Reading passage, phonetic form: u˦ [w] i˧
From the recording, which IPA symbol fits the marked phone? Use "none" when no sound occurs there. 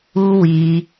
w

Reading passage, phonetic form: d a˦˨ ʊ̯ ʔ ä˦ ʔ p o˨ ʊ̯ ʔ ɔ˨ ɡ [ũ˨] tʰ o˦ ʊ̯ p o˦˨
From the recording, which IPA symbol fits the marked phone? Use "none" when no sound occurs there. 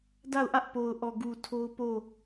u˨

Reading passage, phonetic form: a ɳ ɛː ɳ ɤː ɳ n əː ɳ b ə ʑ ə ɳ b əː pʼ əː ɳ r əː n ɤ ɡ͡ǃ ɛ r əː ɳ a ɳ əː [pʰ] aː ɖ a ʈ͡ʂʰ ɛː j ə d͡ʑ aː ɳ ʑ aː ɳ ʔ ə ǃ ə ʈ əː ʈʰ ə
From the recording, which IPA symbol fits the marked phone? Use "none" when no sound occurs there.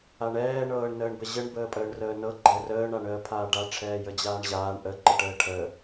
pʰ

